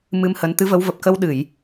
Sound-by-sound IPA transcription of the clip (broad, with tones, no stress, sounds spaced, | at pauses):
m ɨ˧ m h ə˨˦ n t̪ ɨ˨˦ v ə˨˦ w v ə˨˩ p̚ k ə˧ w ɗ ɨ˧˩˨ j